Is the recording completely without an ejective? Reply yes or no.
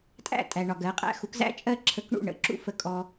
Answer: no